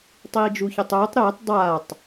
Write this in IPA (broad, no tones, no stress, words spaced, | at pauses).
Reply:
tˤiːd͡ʒuçetˤuːtˤ ɾetˤ dˤaːtˤ